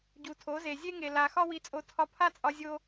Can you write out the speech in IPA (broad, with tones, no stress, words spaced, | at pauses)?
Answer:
ɟu˨tʰo˨˦ze˨ zʲe˦ŋe˨ la˨ xɒ˦wi˧t͡sʼo˧ tʰɒ˧pʰa˦t͡sʼɒ˧ zʲo˦